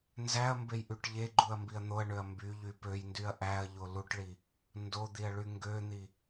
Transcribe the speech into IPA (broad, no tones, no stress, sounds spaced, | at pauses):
n z æ ɐ̯ m b e j ʔ y ʈ ʎ e ɡ͡ǃ u ɐ̯ m b i ɐ̯ n̪ o ɐ̯ ɳ ø ɐ̯ m b y ʎ y p ø j n d y ɐ̯ ʔ æ ɐ̯ ʎ o l u ʈ ɭ i | n d o d̪ i ɐ̯ ɭ y ŋ ɡ ø n̪ i